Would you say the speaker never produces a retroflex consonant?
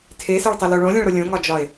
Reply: no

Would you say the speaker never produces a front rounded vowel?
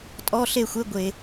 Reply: yes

